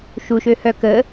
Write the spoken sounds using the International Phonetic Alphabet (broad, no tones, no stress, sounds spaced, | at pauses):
ʃ u ʃ ø h œ k ə